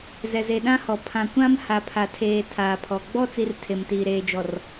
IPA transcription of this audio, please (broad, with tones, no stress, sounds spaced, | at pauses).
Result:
z ɛ˨ z e˨ ɗ ã˦ h ɔ˨ pʰ ã˨ kʷ ã˦ m h a˨ pʰ a˨ tʰ eː˨ tʰ aː˨ pʰ ɔ˨ ɡ͡b ɔ˦ t͡s i˨ r tʰ e˨ m t iː˨ ɾ eː˨ d͡ʒ ɔ˨ r